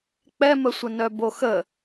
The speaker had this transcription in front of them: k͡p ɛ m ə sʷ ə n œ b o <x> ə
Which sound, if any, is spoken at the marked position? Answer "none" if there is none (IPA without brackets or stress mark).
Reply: x